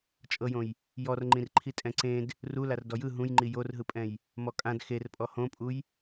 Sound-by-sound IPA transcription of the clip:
t͡ʃʼ ɤ j õ j | j ɔ r ŋ͡ǃ ĩ r ǃʰ i tʼ ɛ̃ ǀ ẽ d | r u l a r d ɔ j ɯ ɦ ũ j ŋ͡ǃ i j o r ɦ ɯ pʼ ɛ̃ j | m ɔ kʼ ã d x e r pʼ ɔ h õ pʼ u j

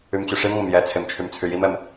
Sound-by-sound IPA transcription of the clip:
y m t͡ɕ ʉ ʂ i m ŋʷ ɛ m j ɛ t͡sʰ e m t͡ʃʰ y m t͡sʰ y j i m ɛ m

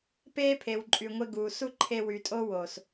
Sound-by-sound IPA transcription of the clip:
p eː˦ pʰ e˨ w ǃʼ y˨ ŋʷ e˧ ɡ uː˨ s u˦ ǃʰ e˧ w y˨ tʼ o˦ w o˨ s

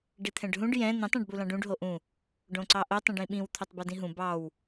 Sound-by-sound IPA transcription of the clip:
ɖ i t̪ʰ ɛ̃ ɖ ɦ ũ ɖ j ɛ̃ n̪ ĩ tˤ ɛ̃ ɖ b u l ɑ̃ ɖ ũ ɖ ɦ o ʔ ũ | ɖ õ ǀ ɑ ʔ o tˤ ĩ ɖ ĩ ɓ ĩ w t̪ʰ o tˤ b ʌ d ĩ ɦ ũ b ɑ w

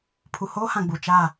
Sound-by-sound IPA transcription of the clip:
pʰ u˨ h oː˦ h ã˨ ɡ͡b u˨ t͡ʃ a˦˨

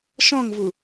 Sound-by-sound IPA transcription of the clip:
ʃ ɔ̃ ŋ v u

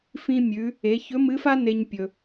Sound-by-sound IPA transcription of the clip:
f ĩ˧ mʲ ʉ˩˧ | e˩˧ ç ɵ˧˥ m ɨ˧˥ f a˥ n e˧ ɲ pʲ ɵ˩

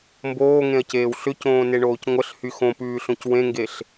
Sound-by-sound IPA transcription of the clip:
m b oː ŋ ẽ ɐ̯ c eː w ɬ ʏ c õː n e ɳ oː c ŋʷ ə ɬ h y x õ p ʉː ɬ õ c w ẽ ŋ ɡ e ɬ

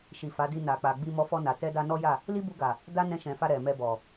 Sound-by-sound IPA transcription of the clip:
ʃ i˨ f a˨˦ d i˧ n a˨ k͡p a˨ ɡ͡b i˧ m ɔ˧ f ɔ˧ n a˨ t ɛ˧ d a˧ n ɔ˦ j a˦˨ | l i˦ b u˧ ɡ a˨ | d a˦ n ɛ̃˧ ʃ ɛ̃˨ f a˧ ɾ ɛ˨ m ɛ˧ b ɔ˨

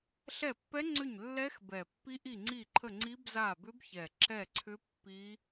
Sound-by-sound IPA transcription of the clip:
ɬ ɛ˦˨ pː ɛ˦˥ ŋ͡ǀ ʏ˦˨ ɲ lː ɛ˦˥ x b ɛ˨˩ pː i˦˥ ʔ i˦˨ ŋ͡ǀ i˦˨ ǃʰ ə˦˨ ŋ͡ǀ i˦˥ b z a˦˨ b ʏ˦˥ b ç ɛ˨˩ ǁ ɛ˦˨ ǀʰ ʏ˦˥ pː i˦˥

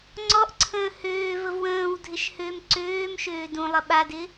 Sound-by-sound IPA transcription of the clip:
ŋ͡ǀ ɔ ʔ ǀʰ ə̃ː h øː v ə v w ə̃ː w dʱ ɪ ʃ h ø m ǀ øː m ʃ øː d ũ lˠ ə ɓ a d ɪ

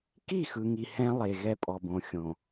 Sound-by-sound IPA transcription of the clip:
k i˦˨ x ɯ˨ ŋ i˨ h ɛ̃˦ lˠ e˨ ɣ ɛ˦ pʼ ɔ˨ b õ˨ xʲ õ˨

